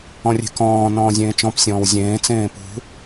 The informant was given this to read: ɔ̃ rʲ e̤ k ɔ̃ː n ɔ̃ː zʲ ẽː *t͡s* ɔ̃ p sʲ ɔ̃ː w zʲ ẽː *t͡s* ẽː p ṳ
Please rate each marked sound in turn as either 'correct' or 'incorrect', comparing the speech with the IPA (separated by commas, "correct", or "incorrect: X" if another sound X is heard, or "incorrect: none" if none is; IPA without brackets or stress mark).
incorrect: t͡ʃ, correct